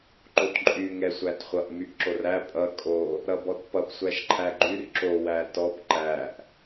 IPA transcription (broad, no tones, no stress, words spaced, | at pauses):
ǃotǃʼy ŋɛsʷætχʷʌʔ myʔǁoræ pʼʌ kʼo | ɾʌbɔtpʌp sʷæʃǃʰæɡ͡ǃyr ǁo wætɔp ǃæʔ